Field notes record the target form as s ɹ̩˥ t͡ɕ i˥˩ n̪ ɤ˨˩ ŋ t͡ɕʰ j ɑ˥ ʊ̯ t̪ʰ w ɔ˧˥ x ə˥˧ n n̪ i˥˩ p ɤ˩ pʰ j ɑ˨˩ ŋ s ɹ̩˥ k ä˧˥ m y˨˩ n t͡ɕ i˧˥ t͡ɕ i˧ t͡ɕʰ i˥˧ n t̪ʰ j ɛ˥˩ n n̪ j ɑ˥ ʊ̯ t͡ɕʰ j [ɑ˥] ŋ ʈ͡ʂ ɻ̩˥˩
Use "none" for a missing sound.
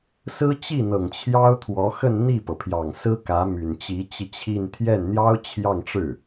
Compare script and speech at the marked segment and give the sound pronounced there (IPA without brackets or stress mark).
ɑ˥˧